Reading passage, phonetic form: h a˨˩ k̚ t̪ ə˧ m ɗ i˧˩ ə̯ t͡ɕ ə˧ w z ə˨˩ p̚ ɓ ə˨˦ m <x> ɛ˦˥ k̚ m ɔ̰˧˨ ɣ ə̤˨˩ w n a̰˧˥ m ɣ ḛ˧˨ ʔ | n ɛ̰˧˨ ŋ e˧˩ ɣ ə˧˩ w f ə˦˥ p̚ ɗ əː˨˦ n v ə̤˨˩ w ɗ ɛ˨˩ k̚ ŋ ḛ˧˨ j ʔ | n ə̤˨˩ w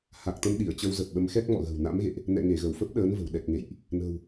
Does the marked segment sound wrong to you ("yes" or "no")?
no